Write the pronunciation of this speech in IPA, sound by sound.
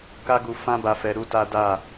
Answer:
k a˦ ɡ u˧ f ã˦ b a˧ f ɛ˧ ɾ u˦ t a˦ d a˦˨

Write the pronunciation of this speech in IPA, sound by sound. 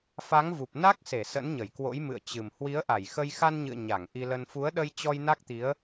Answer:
f a˨˦ ŋ v u˨˩ p̚ n a˦˥ k̚ s e˧˩ s ə̰˧˥ n ɲ ə˧˩ j k w o̰˧˥ j m ɨ̰˧˨ ə̯ t͡ɕ ɨ˨˩ m h w i˨˦ ə̯ ʔ a˧˩ j x ə˧ j x a˧ n ɲ ɨ̰˧˨ ə̯ ɲ a˧˩ ŋ ʔ i˧ l ə˧ n f u˨˦ ə̯ ɗ ə˧ j t͡ɕ ɔ˧ j n a˦˥ k̚ t̪ i˨˦ ə̯

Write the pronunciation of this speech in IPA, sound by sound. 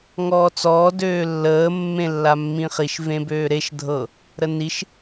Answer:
ŋ ɔː t͡s ɔː d øː lː əː mː ẽ lː a mː ĩ χ i ʃ v ẽ b øː ɾ e ʃ dʱ ɤ | ɾ ə n i ʃ

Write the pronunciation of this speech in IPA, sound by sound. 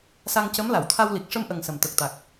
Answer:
s a˧ ŋ c ə˧˥ m l a˨˩˨ w t̪ʰ a˧ w l i˨˩ k̚ ʂ ə˧ m ʔ ə˨˩ ŋ s ə˨˩ m t̪ ə˨˩ k̚ t̪ a˨˩ k̚

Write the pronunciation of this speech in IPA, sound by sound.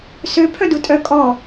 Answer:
s ø pʰ œ d u tʼ œ kʼ ɔ

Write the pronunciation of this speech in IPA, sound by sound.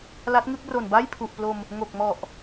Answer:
l a˦˥ t̚ ŋ ɯ˥˩ k̚ r o˨˩ n b a˥˩ j pʰ u˨˩ ʔ p l o˧ m | ŋ o˨˩ k̚ m ɔ˨˩ ʔ

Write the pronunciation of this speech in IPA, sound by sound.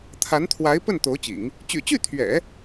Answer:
t̪ʰ a˧˥ n t̪ʰ w a˧˥ ɪ̯ p ə˥˩ n t̪ o˧˥ ʊ̯ t͡ɕ ḭ˨˩˦ ŋ | t͡ɕ y̰˨˩ t͡ɕ y˥˩ t̪ʰ ɥ ɛ̰˨˩˦

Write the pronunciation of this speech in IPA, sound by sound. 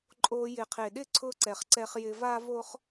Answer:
ǃʼ o˧ j ɪ˨ qʰ e˨ ɗ ɪ˦˨ ǀʰ ʊ˧ ǀ ɛ˨ χ ǀ ɛ˧ χ j ɪ˧ v a˦ v o˦ χ

